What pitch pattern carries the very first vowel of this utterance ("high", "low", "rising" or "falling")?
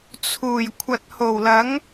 low